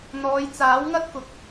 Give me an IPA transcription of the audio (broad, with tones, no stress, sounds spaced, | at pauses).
n̪ ɔː˨˧ j t͡s aː˨˥ w ŋ ɐ˥ t̚ k ʊ˨ k̚